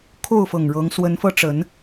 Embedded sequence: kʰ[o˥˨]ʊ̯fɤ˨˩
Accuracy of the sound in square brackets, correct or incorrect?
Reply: correct